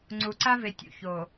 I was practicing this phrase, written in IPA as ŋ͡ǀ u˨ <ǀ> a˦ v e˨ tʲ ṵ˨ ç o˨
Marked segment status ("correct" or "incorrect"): correct